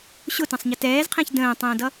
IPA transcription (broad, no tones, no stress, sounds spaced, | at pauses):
ɕ ʊ t ə̃ sˤ ɲ ʌ t ɛː z qʰ ɛ̃ ç d ə̃ː tˤ ə̃ː d ʌ